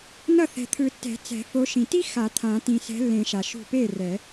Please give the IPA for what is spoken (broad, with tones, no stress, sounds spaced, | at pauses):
n ʌ˥˩ θ ɛ̤˨ t̪ʰ ɯ˨˩˦ tː ɛ̤˨˩˦ t͡s ɛ̤˨˩˦ f o˨˥ ʃ ĩ˨ t i˥ x a˨˩˦ t̪ʰ ã˨˩˦ t ĩ˨ s ɛ̤˨˥ lː ẽ˨˩˦ ʃ a˨ ʃ ṳ˥˩ p e˥˩ r ɛ˨˩˦